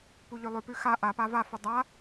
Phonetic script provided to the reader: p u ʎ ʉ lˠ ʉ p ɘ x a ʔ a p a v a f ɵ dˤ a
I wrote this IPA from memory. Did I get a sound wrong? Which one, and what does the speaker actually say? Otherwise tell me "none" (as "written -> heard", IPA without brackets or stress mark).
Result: ɘ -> ʉ